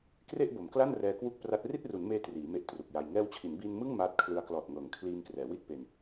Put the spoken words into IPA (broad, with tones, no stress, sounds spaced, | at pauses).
k r e˥˩ ʔ b o˩˦ m k l a˥˩ n r ɛː˧ k w u˥˩ k̚ p r a˦˥ t̚ r i˥˩ t̚ r u˩˦ n m eː˧ t r iː˩˦ m e˦˥ ʔ t r u˨˩ k̚ j a˧ j ŋ ɛː˧ w t͡ɕʰ i˩˦ n b iː˧ n m ɯ˥˩ ŋ m aː˦˥ t̚ kʰ l ɯ˧ a̯ k l ɔː˨˩ t̚ ŋ ɤː˩˦ ŋ kʰ l iː˧ m k r ɛː˩˦ w i˥˩ t̚ p e˧ n